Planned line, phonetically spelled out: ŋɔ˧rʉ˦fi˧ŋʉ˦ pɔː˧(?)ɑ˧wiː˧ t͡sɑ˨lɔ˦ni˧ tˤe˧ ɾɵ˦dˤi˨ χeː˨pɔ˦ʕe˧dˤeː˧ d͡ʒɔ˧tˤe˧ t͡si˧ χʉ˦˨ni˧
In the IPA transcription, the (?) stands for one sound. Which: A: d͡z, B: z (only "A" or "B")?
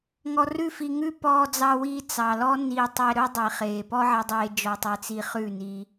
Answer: A